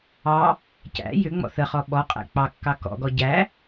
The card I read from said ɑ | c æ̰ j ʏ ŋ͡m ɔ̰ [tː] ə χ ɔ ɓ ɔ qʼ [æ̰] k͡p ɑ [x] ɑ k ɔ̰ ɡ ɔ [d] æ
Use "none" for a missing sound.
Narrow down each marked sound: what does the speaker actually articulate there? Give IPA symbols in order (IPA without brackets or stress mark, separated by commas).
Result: θ, æ̰, kː, ɟ